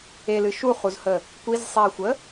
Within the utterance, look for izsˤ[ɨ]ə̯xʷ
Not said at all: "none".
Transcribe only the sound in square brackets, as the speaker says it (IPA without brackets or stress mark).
i